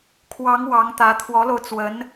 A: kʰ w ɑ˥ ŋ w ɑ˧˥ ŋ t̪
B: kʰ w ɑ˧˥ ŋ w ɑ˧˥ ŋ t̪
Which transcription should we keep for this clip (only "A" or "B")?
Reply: B